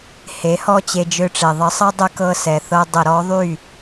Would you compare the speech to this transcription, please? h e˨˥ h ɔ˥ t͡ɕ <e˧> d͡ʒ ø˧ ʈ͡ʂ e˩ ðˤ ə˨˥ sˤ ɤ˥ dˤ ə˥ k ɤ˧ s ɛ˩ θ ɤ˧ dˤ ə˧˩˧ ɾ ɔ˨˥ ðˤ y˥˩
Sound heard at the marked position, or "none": e˧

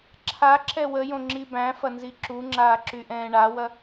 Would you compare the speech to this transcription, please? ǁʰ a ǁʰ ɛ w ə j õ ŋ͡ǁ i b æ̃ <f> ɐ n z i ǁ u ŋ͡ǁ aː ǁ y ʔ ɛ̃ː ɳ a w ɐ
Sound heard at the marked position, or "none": f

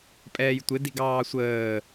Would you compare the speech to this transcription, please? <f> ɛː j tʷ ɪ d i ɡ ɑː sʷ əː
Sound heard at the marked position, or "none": pʼ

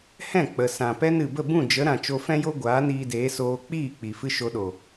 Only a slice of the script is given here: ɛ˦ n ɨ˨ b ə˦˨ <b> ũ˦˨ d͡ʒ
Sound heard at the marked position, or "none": b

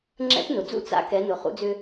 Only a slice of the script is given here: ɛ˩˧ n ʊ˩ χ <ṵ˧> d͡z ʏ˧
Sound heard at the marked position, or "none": ṵ˧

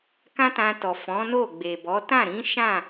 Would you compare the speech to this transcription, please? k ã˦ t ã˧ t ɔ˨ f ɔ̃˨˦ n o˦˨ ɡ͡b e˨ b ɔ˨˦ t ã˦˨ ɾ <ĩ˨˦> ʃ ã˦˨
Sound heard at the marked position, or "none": ĩ˨˦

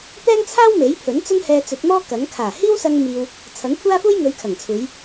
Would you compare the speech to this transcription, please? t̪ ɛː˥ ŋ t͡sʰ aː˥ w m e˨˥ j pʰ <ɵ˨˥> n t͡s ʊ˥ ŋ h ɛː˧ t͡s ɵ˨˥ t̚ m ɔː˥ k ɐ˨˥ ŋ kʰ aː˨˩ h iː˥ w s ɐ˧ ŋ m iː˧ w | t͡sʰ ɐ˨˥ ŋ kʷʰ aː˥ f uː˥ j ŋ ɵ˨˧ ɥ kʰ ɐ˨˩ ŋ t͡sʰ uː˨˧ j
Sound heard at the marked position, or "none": ɵ˨˥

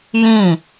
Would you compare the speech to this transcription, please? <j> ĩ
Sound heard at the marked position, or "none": j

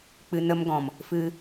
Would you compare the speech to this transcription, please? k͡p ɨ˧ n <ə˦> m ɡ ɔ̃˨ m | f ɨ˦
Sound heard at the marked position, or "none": ə˦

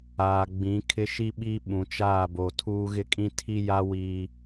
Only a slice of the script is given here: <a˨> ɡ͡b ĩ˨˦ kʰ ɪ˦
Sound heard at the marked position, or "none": aː˨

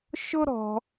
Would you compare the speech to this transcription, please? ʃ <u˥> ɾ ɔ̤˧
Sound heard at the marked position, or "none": ʊ˥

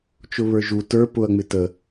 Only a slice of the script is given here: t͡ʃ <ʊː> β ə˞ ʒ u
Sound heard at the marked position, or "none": ʊ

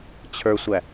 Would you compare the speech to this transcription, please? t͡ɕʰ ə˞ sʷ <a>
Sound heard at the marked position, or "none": æ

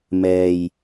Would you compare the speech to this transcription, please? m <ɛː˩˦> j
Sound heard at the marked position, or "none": ɛː˧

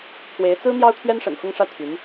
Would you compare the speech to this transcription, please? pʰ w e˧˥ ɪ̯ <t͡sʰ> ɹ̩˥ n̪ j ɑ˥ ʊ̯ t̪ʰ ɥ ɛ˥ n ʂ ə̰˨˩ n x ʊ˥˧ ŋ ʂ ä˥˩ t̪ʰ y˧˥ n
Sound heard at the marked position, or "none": t͡s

